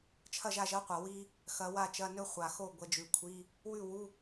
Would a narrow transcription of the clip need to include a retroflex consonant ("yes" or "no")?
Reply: no